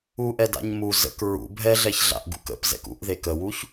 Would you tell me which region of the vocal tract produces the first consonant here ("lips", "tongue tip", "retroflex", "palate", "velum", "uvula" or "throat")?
throat